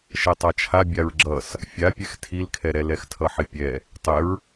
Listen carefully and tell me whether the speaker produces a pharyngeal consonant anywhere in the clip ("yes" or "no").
yes